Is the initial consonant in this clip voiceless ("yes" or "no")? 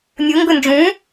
no